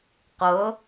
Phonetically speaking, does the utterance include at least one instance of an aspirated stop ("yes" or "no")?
no